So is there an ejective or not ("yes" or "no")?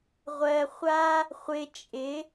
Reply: yes